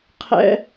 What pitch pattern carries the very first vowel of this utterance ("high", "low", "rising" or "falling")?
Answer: high